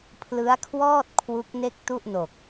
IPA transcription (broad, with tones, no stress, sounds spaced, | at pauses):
pʰ l ɯ˦˥ a̯ kʰ w ɔː˥˩ t̚ kʰ w u˦˥ k̚ n e˥˩ k̚ t u˥˩ ʔ n o˨˩ k̚